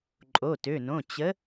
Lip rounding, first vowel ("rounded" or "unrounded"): rounded